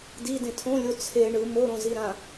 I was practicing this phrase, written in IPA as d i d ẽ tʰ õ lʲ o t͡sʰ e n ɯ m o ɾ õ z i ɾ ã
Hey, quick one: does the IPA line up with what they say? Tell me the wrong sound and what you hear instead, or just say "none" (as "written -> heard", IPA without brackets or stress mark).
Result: n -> ɳ